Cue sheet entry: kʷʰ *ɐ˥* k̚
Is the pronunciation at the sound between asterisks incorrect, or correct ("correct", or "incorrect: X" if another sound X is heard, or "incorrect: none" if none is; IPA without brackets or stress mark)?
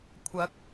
incorrect: ɐ˨˥